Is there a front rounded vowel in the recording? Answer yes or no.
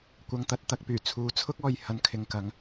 yes